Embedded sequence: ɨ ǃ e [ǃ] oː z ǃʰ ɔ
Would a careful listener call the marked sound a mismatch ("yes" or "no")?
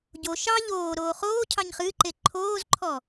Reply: yes